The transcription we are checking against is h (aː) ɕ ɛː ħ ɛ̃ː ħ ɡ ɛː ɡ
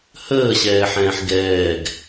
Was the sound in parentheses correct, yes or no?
no